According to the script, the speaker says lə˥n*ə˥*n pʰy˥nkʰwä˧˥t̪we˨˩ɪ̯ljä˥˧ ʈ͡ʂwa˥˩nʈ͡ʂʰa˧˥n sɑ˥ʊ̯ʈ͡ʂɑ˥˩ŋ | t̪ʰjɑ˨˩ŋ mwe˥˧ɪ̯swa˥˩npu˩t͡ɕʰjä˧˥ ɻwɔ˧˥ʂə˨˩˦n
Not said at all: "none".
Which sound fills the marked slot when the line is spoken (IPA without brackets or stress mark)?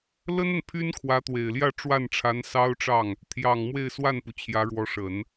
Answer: ə˨